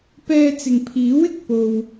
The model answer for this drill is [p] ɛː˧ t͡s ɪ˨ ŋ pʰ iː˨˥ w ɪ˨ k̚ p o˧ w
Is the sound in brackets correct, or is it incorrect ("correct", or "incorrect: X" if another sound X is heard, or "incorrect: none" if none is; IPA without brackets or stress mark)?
correct